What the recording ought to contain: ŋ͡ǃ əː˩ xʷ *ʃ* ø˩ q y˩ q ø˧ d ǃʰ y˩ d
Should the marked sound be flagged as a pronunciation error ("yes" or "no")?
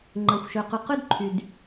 no